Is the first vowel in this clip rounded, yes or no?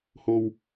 yes